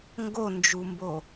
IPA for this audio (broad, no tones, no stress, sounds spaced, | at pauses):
ŋ ɡ o n d͡ʒ u m b o